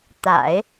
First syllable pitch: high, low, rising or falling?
low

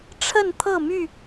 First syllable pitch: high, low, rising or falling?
falling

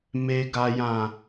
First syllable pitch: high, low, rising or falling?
low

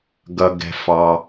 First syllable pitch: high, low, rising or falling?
low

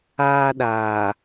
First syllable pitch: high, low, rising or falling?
high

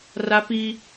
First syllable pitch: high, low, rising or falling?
high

